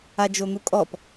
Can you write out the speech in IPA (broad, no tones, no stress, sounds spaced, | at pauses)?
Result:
a d͡ʒ o n̪ u kʼ ɔ p